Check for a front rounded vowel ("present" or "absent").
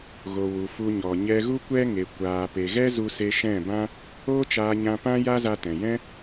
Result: absent